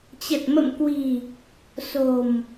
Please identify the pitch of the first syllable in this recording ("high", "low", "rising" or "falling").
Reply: low